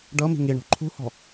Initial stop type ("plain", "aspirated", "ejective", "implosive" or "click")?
plain